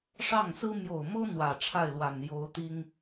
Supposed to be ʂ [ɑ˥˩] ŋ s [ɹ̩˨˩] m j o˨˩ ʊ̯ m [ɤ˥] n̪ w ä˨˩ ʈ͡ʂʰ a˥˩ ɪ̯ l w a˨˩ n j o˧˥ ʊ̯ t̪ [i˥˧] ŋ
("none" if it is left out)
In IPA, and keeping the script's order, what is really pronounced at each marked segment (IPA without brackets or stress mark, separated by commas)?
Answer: ɑ˥˩, ɹ̩˥, ɤ˥, i˥